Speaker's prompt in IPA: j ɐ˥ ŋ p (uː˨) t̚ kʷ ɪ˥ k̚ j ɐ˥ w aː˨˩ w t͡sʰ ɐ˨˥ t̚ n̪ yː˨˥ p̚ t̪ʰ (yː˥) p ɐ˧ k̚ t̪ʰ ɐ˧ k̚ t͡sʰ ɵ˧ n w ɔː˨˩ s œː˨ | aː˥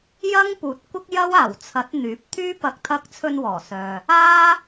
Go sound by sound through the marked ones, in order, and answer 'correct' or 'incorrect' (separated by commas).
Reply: correct, correct